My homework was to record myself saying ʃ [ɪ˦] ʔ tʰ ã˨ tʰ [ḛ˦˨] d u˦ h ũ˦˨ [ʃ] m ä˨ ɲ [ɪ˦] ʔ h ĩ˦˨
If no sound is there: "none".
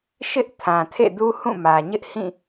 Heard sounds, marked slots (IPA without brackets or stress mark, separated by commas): ɪ˦, ḛ˦˨, none, ɪ˦